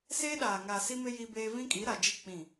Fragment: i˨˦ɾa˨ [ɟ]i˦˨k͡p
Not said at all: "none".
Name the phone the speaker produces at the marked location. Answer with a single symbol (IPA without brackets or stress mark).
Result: d͡ʒ